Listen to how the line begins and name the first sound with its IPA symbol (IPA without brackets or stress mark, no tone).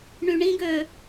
ɳ